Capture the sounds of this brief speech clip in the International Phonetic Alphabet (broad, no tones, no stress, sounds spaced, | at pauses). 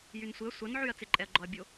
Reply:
j y n sʷ ɪ ɐ̯ sʷ ɐ n ʕ y ɐ̯ t͡s ɪ ǃʼ ɛ ɐ̯ ɡ͡ǃ ɔ ɐ̯ bʲ o